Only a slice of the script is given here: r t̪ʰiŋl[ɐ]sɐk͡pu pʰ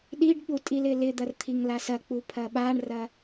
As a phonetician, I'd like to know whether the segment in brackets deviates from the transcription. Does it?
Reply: yes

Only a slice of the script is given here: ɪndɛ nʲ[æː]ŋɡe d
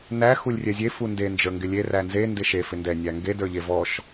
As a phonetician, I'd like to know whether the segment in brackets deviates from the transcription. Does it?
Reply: yes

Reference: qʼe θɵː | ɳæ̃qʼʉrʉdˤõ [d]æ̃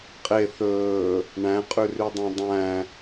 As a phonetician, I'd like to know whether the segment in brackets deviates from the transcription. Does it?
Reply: yes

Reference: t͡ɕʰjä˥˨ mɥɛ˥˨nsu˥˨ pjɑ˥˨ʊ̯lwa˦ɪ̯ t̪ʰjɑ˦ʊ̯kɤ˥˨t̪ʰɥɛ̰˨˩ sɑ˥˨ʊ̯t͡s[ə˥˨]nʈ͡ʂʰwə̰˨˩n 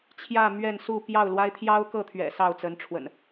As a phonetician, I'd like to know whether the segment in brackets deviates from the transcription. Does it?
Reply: yes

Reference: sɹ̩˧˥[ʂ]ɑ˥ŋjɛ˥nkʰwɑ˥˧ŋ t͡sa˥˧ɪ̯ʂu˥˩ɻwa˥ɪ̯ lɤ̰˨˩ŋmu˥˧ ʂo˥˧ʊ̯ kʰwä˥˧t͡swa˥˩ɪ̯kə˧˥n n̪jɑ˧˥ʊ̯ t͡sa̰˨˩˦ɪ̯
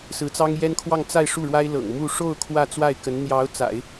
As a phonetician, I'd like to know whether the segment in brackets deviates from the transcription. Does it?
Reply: yes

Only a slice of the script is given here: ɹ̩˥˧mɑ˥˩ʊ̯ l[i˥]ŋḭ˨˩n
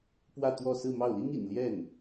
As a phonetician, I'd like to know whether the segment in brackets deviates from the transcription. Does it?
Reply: no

